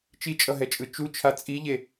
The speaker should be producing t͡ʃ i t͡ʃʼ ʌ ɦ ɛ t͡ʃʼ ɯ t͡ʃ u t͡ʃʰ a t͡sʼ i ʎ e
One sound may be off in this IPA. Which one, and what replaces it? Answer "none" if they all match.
none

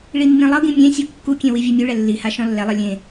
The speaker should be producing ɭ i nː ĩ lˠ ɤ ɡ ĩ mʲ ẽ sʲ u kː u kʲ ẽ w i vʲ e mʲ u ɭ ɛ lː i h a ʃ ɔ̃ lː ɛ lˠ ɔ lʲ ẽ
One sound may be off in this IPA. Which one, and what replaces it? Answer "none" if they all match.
ɔ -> ɤ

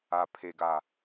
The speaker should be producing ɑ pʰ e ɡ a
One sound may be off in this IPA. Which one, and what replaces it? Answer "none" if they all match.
ɑ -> a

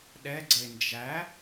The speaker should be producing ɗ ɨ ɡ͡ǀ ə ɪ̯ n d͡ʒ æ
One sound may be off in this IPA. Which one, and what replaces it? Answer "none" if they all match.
ɨ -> ɛ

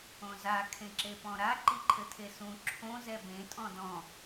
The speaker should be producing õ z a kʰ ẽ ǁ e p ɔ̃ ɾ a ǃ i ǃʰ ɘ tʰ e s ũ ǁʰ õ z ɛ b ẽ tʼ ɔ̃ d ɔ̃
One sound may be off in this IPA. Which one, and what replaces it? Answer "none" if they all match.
none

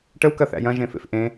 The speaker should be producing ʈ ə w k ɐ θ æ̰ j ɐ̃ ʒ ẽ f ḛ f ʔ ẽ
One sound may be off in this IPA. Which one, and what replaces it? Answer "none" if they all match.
none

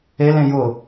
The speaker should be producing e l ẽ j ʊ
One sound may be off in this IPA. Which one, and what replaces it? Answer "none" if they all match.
none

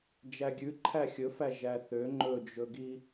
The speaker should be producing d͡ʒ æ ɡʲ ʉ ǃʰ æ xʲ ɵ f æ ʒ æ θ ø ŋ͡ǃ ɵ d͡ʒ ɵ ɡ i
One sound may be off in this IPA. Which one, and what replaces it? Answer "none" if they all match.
none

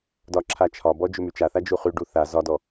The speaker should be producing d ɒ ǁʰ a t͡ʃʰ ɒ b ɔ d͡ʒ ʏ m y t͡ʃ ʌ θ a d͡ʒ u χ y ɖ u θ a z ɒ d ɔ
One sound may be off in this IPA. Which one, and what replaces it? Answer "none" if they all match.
ʌ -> a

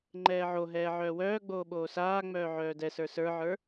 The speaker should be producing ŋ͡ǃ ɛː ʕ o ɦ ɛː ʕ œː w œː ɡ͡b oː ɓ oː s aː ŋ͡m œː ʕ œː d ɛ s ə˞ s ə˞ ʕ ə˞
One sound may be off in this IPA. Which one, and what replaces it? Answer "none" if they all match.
none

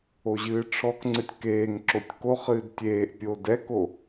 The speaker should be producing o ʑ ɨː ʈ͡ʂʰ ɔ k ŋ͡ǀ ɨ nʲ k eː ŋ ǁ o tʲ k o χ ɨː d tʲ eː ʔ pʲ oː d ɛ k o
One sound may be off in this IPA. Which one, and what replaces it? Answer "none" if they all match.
nʲ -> tʲ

